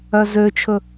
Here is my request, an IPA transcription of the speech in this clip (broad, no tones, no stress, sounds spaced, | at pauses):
œ z ø t͡ʃʰ ɵ